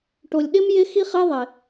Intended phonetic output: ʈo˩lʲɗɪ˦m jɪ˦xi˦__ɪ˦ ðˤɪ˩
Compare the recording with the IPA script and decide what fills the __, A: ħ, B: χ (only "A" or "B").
B